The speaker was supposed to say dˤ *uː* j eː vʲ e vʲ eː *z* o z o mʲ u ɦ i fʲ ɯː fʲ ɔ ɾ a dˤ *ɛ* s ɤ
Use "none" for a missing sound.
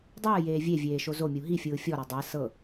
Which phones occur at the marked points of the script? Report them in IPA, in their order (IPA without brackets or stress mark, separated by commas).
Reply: ɯː, ʃ, ɛ